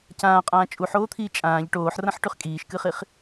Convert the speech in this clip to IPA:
c ãː qʼ ãː t͡ʃʼ u ħ oː t̪ʰ iː t͡ʃʼ ãː ʎ ʈ oː ħ r ɐ̃ ħ ʈ ʉ χ kʼ iː ʃ k ɨ χ i χ

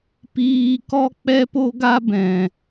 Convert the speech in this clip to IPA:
p iː˧ k ɔ˧ k͡p ɛ˧ p o˧ ɡ a˧ b ɛ̃˨

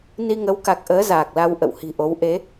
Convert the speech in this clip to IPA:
n i˧ ŋ ə˨˦ w k a˨˩ k̚ ʔ əː˨˦ z aː˨˩ k̚ l a˧ w ʔ ə̰˧˨ w h i̤˨˩ ʔ o˨˦ w ʔ e˨˦

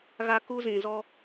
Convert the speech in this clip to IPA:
ɣ a˦ k u˦ z ĩ˨ z ɔ˦

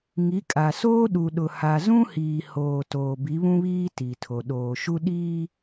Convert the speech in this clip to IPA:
ŋ i˨˦ kʼ a˨ s oː˦ ɗ u˨ ɗ ʊ˨ h a˨ z ũ˦ h iː˨ h oː˨ t oː˨ b i˨˦ β ũ˦ β iː˦ t i˨ tʰ o˨ ɗ oː˨ ʃ u˦ ɗ iː˦

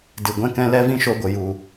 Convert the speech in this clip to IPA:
d ɨ˨ ɡʷ ɛ̃˦ k ɛ̃˦ l ɛ˦ v ĩ˦ ʃ o˧ ɡʷ ə˨ j u˨

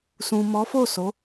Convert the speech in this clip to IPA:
s ũ˨ m ɔ˨˦ f o˦˨ s o˨˦

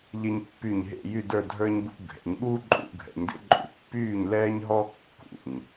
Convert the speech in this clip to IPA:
ʎ e˧ ɲ pː y˧˩ ɲ ɦ ḛ˥˧ j y˥˧ d ə˞˥˧ dʱ ə˞˥ ɲ b ṵ˥ ɡʱ ɛ̰˩˧ ɲ ɠ uː˥ ǃʼ ṵ˧ ɡʱ ɛ̰˩˧ ɲ d ḛ˥ ǃʼ ṵ˧˩ pː yː˥˧ ɲ l ɛː˥ ɲ ɦ ɔ˥ kː ṵ˧˩ ɲ

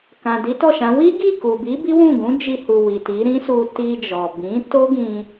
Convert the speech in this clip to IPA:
k ã˨ d i˨˦ t ɔ˦˨ ʃ ã˨˦ w i˦ ɡ i˦˨ k u˨ b i˨˦ b i˦ w ũ˦˨ ɡ ũ˨˦ d͡ʒ i˧ h u˨ w i˨ t i˨˦ ɾ ĩ˦ s u˧ t i˧ d͡ʒ ɔ˨ b ĩ˨˦ t o˦ ɡ ĩ˧

